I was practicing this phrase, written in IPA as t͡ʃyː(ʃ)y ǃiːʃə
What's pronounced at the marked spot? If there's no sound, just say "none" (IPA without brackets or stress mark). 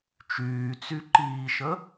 t͡s